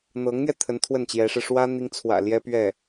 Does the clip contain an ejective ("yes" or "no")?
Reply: no